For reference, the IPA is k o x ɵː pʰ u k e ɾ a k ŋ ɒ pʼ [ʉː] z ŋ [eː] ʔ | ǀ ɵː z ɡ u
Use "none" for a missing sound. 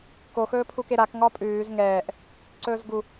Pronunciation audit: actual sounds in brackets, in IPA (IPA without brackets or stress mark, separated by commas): ʉː, ɛː